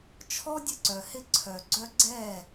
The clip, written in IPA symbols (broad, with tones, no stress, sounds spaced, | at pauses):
t͡ʃʰ ɔ˦ dʲ ə˧ ǀ œ˨ h ɪ˧ ǀʰ œ˨ ɡ͡ǀ œ˧ ɡ͡ǀ ɛ˦˨